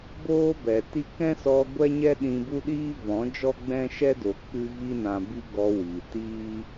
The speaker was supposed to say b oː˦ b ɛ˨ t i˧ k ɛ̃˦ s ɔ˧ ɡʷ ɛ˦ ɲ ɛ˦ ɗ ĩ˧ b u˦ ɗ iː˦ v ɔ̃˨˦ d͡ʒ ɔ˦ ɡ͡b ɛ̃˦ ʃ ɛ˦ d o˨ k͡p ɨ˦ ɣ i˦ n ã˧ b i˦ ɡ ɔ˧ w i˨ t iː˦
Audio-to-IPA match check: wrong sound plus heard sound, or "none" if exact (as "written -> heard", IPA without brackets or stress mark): none